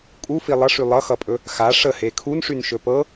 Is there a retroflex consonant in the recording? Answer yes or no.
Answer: yes